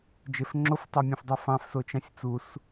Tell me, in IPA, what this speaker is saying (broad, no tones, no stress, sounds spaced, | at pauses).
d͡ʒ e f ŋ͡ǁ o f tˤ e mʲ õ f dˤ e f ɑ̃ f s o t͡ʃ ɑ̃ sʲ t͡s u s